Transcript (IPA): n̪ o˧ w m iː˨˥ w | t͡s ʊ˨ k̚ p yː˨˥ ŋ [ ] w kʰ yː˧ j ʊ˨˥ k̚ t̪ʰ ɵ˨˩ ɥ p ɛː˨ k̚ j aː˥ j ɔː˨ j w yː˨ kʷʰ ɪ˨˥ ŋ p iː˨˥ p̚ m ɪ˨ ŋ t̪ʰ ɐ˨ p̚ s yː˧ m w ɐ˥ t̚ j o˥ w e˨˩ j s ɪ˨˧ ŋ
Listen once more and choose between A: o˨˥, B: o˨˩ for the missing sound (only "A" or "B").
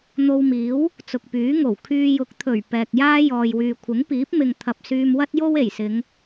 B